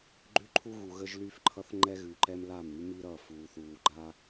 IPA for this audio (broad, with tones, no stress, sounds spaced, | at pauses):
ɡ͡ǃ ʉ˦ ǃʰ u˦ ɣ u˨ ɣ ə˦ ʒ l y˦ f ǃʰ ʌ˦ θ ŋ͡ǃ ɛ˦ ɣ ʉ˨ ǃ ɛ˦ m l a˦˨ m ɾ y˦ m i˦ ɾ ʌ˦˨ f uː˨ θ uː˨ ɡ͡ǃ a˦